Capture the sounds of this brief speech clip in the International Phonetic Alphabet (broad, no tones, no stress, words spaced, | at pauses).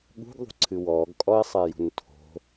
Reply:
ɠṳɡðˤṳǀʰɨ wɔːɡkʼɔi̯sˤejṳn tʰo̤